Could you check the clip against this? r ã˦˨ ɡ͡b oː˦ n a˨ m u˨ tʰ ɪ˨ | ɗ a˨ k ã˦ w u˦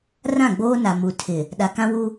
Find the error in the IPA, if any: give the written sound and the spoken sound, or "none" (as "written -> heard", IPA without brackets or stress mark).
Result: none